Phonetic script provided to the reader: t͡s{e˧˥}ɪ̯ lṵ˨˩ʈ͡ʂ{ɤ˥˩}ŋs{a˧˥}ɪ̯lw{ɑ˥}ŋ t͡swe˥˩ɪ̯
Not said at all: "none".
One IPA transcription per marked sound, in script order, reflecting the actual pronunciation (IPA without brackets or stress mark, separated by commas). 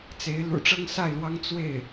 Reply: e˧˥, ɤ˥, a˥˩, ɑ˥